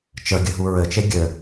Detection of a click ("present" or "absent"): absent